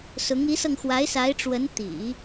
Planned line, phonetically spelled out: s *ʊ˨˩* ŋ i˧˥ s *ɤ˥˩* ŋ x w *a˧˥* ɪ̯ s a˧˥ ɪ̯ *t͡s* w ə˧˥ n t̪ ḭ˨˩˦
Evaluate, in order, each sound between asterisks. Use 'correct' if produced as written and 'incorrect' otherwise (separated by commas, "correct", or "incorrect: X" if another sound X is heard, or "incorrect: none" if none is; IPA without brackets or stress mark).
incorrect: ʊ˧˥, incorrect: ɤ˧, correct, incorrect: ʈ͡ʂ